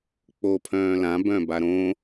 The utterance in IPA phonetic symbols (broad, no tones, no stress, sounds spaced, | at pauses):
k͡p o pʰ œ̃ː l ã b œ̃ b a ɾ õ